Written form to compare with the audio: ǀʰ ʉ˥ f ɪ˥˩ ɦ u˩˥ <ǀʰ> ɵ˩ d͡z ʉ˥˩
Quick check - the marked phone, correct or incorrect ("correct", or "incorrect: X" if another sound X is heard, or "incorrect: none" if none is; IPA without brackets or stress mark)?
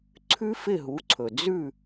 correct